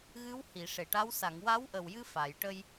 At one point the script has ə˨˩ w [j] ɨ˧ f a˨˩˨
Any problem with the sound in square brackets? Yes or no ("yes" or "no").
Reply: no